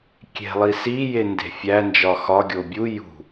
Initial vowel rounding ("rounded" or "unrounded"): unrounded